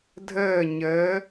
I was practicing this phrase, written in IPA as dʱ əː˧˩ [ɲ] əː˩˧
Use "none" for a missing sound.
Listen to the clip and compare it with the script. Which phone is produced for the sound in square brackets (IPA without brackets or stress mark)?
ɲ